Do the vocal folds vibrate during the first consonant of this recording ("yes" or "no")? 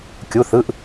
no